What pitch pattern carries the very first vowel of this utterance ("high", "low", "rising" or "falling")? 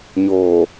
low